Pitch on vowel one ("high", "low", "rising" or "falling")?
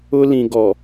high